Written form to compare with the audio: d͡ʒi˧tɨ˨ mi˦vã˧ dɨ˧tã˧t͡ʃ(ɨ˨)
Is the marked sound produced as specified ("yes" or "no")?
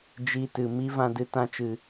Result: yes